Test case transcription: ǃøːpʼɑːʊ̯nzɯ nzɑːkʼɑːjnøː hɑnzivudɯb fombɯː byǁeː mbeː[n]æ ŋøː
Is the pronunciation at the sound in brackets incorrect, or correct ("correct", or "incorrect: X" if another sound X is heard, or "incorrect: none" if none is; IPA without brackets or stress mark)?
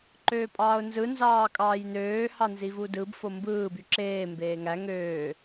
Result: incorrect: ŋ